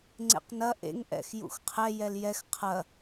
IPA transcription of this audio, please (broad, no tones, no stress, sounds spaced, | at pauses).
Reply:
ŋ͡ǀ ḛ q n ɐ ʔ ḛ ŋ ʔ ɛ̰ x j ṵ x qʰ ɛ j ɛ l j ɛ x qʰ ɐ